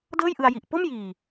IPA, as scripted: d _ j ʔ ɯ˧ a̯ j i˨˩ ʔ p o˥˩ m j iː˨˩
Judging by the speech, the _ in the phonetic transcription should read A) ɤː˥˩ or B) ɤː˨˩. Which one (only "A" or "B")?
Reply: A